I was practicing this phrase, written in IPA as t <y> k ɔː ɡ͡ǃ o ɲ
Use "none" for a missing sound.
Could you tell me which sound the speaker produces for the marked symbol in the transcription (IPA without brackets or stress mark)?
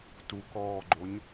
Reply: u